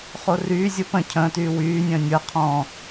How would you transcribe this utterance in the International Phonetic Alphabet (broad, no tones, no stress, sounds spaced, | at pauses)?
χ o r yː zʲ o p ə̃ cʰ ə̃ː t yː w yː nʲ ə̃ː nʲ ɤ qʰ ɔ̃